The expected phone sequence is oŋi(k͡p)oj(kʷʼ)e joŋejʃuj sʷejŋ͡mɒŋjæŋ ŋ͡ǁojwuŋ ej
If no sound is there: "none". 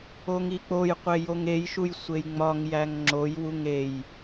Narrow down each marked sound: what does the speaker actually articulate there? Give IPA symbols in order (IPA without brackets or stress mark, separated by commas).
k͡p, qʷ